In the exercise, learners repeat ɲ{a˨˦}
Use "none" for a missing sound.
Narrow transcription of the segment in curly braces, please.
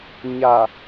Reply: a˨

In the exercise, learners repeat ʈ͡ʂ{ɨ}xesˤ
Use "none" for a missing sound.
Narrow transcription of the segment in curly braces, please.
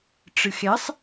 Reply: ɨ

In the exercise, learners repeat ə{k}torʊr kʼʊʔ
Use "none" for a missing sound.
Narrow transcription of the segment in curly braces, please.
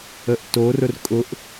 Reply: ʔ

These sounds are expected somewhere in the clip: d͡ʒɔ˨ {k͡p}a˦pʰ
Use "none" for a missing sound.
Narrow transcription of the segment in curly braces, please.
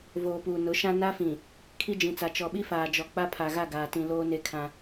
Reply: k͡p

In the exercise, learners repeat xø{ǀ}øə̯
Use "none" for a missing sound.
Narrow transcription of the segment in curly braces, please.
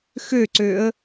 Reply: ǀ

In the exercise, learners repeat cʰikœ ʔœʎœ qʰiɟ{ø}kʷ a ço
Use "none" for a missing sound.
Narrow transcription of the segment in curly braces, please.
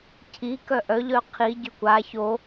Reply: ø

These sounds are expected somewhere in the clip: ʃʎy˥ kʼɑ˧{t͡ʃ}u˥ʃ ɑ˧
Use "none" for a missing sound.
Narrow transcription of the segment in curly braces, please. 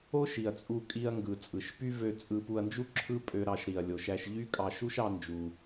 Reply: ʃ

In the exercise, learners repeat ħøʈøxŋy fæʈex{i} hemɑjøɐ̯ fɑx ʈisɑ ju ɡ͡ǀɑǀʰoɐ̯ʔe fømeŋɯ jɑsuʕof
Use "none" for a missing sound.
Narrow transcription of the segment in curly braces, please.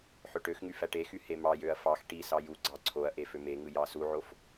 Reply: y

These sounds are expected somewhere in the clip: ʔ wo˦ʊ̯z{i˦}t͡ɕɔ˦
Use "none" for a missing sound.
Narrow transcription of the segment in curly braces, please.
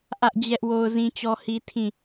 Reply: ĩ˦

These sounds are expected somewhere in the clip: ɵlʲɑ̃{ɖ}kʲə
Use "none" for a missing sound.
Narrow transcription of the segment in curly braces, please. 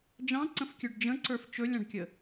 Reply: ɖ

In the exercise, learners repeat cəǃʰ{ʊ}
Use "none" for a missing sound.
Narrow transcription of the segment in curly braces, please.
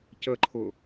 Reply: ʊ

